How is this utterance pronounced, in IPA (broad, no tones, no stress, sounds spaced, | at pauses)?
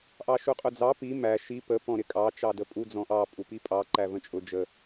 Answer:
ʔ ɑ ʃ u qʼ ʊ d͡z ɑ p i m æ ʃ i p ə p ɔ̃ ɾ ɪ kʼ ɑ t͡ʃ ɑ d ə pʼ u d͡z ɔ̃ ʔ ɑ pʼ u p i pʼ ɑ ǃ æ v ə̃ t͡ʃʼ ʊ d͡ʒ ə